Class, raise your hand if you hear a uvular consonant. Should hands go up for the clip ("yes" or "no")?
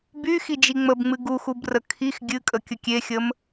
no